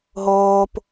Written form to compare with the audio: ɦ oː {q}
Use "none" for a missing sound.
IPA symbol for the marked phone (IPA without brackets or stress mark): p